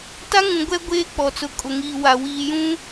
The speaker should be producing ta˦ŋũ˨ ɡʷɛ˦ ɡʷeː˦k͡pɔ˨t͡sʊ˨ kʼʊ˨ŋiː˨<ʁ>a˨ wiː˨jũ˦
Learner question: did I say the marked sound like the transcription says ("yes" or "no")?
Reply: no